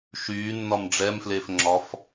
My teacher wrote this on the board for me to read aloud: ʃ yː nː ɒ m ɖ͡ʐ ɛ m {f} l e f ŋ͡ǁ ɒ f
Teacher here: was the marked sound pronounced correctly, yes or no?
yes